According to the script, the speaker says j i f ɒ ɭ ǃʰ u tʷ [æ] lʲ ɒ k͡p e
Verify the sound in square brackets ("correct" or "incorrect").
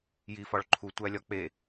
correct